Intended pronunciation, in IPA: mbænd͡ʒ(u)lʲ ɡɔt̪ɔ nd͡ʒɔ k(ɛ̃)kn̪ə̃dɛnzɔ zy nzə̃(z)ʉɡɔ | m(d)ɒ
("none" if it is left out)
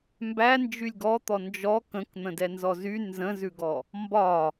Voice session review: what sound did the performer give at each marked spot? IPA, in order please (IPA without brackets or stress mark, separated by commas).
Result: y, ə̃, z, b